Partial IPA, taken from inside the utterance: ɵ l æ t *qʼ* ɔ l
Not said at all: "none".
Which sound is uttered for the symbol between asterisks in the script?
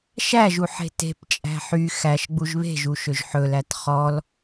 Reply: χ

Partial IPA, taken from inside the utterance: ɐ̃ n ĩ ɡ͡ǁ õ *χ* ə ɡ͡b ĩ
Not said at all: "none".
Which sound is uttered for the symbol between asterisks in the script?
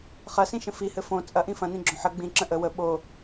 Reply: ħ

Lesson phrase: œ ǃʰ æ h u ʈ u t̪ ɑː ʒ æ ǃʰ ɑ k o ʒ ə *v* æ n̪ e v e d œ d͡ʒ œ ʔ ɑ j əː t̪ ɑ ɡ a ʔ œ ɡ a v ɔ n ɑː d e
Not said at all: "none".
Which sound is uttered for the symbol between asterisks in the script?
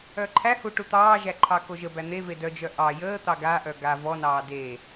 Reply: b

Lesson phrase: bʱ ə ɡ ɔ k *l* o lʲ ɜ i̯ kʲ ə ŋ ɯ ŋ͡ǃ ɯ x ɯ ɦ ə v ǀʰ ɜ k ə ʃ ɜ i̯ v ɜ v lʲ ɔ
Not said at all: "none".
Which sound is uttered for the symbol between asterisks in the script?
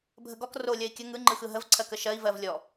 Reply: r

